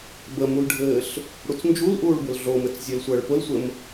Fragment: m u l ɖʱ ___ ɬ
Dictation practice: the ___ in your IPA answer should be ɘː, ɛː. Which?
ɘː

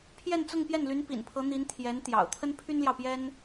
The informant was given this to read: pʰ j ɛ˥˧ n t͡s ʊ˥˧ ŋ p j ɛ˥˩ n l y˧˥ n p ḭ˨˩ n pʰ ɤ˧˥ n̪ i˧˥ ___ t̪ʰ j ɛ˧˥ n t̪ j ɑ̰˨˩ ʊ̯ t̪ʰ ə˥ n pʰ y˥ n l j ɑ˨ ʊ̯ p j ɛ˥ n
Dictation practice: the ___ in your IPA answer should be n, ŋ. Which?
n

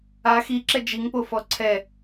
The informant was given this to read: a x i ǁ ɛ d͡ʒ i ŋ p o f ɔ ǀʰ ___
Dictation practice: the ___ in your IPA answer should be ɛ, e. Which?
ɛ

